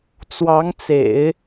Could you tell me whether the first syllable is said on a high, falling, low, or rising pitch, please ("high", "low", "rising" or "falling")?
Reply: rising